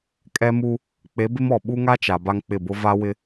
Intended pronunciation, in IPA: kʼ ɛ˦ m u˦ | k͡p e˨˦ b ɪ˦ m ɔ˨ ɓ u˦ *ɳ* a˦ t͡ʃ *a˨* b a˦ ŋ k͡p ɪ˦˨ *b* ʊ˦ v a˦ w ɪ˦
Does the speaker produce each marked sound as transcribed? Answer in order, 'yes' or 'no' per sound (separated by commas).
no, yes, yes